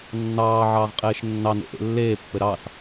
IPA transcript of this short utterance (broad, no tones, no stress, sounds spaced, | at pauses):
nː ɑː ʕ ɑː ʁ qʼ eː ʃ nː ɑ n ḛ ʔ ḛ lː eː pː ɘ ɾ ɑ s